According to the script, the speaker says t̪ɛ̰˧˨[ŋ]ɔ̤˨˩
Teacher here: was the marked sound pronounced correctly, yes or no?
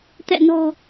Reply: no